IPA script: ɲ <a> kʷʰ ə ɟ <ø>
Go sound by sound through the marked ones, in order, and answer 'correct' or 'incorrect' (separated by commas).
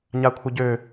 correct, correct